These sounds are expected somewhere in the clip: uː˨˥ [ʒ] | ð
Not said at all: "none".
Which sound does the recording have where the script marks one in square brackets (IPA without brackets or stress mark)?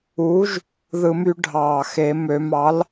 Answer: ʒ